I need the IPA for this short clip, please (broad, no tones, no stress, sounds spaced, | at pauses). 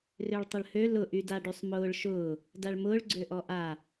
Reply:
r ø ɭ tˤ ə ɭ h ø l ʊ ʔ y d a ɖ y sˤ m ʊː ɭ ʃ ʊː | d a ɭ m ʊː ɭ ɡ͡ǀ ø ʔ ɔ ʔ a